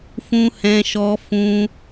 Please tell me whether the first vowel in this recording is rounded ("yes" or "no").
yes